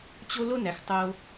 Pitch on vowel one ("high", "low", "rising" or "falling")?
high